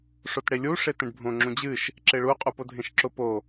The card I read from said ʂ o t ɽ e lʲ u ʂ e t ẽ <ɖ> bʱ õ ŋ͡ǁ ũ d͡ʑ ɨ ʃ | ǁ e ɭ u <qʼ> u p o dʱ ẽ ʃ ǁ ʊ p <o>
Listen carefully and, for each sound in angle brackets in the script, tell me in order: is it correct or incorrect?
correct, correct, correct

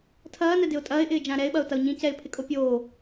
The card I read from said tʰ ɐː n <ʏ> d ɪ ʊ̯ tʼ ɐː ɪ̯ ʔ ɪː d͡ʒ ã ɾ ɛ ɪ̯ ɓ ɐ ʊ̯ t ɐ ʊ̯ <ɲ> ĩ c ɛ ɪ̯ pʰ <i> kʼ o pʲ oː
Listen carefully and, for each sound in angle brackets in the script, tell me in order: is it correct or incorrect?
incorrect: ɛ, correct, incorrect: ɪ

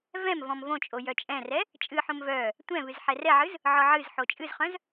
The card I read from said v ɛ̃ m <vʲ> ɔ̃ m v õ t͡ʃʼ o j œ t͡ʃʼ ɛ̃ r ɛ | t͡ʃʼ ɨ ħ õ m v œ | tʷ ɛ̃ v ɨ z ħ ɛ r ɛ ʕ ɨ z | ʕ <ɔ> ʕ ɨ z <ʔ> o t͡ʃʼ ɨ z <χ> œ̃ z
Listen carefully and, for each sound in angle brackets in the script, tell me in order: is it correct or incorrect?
incorrect: v, correct, incorrect: ħ, correct

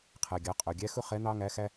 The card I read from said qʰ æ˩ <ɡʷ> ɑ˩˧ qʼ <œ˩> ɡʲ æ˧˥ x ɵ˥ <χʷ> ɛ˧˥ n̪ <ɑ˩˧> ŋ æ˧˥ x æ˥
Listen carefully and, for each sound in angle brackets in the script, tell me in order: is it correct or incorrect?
incorrect: ɡʲ, correct, incorrect: χ, incorrect: ɑ˥

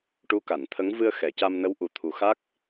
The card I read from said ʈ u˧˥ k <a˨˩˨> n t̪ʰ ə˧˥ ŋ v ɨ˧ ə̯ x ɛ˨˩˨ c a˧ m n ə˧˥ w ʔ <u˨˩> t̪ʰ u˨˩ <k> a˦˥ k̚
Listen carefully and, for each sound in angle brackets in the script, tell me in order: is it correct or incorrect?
correct, correct, incorrect: x

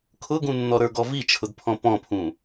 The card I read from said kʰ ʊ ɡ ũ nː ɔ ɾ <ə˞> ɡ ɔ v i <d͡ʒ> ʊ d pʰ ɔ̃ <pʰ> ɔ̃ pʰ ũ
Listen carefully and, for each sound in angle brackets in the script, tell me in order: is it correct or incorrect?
correct, incorrect: t͡ʃʰ, incorrect: p

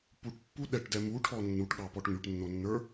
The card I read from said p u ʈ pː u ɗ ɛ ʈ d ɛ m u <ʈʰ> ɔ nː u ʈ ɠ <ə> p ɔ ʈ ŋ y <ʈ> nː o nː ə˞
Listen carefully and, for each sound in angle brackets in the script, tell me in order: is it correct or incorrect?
correct, incorrect: ɑ, correct

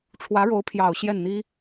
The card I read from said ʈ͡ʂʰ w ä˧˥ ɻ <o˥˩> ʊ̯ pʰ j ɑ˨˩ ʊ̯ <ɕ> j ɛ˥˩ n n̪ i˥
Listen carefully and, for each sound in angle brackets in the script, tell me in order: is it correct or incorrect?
incorrect: o˧˥, correct

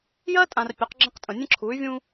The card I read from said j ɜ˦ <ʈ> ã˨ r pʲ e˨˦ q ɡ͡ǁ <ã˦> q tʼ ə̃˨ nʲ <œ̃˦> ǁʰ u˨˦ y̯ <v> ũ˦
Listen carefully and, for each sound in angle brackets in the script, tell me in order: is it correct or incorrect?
incorrect: tʼ, incorrect: ə̃˦, incorrect: ə̃˦, incorrect: vʲ

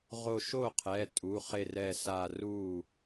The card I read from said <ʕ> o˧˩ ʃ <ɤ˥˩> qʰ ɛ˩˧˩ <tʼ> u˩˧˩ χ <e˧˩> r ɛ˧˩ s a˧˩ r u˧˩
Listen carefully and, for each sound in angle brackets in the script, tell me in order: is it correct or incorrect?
incorrect: ʁ, incorrect: o˥˩, correct, correct

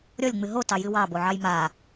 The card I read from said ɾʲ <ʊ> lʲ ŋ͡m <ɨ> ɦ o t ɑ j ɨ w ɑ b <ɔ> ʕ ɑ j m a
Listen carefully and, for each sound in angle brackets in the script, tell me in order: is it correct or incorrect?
incorrect: ɔ, correct, incorrect: o

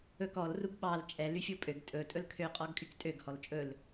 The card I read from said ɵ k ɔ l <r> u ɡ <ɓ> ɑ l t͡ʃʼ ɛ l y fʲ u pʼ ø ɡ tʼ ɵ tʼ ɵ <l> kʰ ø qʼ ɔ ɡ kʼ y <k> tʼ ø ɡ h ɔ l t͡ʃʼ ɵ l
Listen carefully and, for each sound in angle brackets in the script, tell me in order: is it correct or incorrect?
correct, correct, correct, correct

